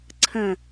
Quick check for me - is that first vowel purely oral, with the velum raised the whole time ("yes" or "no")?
no